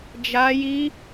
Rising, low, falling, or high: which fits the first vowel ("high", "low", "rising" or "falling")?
high